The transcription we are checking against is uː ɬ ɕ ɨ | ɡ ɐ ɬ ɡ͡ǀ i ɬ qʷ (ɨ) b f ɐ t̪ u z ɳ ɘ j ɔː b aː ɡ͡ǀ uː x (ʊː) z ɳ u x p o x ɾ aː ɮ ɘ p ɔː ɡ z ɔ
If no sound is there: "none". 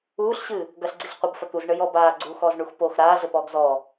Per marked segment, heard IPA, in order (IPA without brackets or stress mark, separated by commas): ɨ, ɔː